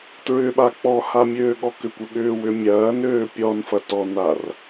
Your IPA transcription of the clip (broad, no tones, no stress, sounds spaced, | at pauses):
t ɹ ʏ ɓ a k͡p ɔ h a mʲ øː ɠ ɔ k ʏ kʷ ʏ ɠ ʏː w ʏ mʲ ɐː n øː pʲ ɔ n f ɐ t ɔ n a r